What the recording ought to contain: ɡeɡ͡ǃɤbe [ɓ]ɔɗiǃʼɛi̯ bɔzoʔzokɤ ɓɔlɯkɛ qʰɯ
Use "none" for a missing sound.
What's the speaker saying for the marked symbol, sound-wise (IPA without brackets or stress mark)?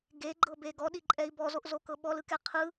ɡ